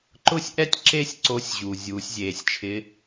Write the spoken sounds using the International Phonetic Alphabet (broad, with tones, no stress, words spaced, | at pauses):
ǃʊ˥sʲʔɛ˥tʲ ǁe˥sʲǀo˧˥sʲʑu˩ zʲuː˩˧sʲzʲeː˩sʲt͡ʃʰɪ˧˥